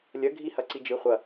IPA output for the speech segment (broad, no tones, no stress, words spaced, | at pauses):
lʲɐ ɡʱihɐǀid͡ʒɨ χʷɐ